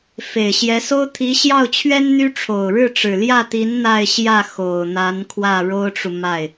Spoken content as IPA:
f e˨˩ ɪ̯ ɕ j ɛ˧˥ s o˥ ʊ̯ t̪ʰ i˧˥ ɕ j ɑ˥˩ ʊ̯ t͡ɕʰ ɥ ɛ˥ n n̪ y˥ ʈ͡ʂʰ o˨˩ ʊ̯ ɻ ɻ̩˥˩ ʈ͡ʂ ɻ̩˨˩ l j ä˥˩ t̪ i˧˥ n n̪ a˥˧ ɪ̯ ɕ j ä˥˩ x o˨˩ ʊ̯ n̪ a˧˥ n kʰ w ä˥˩ ɻ o˥ ʊ̯ ʈ͡ʂ u˨ m a˥˩ ɪ̯

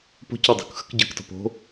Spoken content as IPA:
p o̤ c ɔ dˤ o̤ k x ə̤ k ɟ ə˞ k t ɔ̤ p o̤

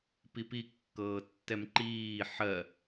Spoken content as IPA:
p i p i kː ɤː tː ɛ m ǃ iː ħ ɜ

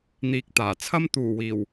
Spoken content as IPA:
n̪ iː˨ k̚ t̪ aː˨˩ t͡sʰ ɐ˥ m t̪ uː˨˩ w iː˨˩ w

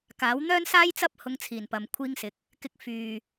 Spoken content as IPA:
k aː˨˥ w n̪ œː˥ n s aː˥ j t͡s ɐ˥ p̚ h ʊ˧ ŋ t͡sʰ iː˨˩ n p ɐ˨ m kʷʰ iː˧ ŋ s ɪ˨˥ k̚ | k ɪ˧ k̚ f yː˨

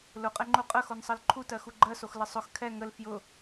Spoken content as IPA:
l ʊ qʼ ɛ ŋ͡ǃ u qʼ ə x o n sˤ ɜ l ǃʰ u t ɜ x u ɡ͡ǃ ɜ s o x l ə sˤ ʊ x kʰ ɛ ŋ ə l f j ʊ

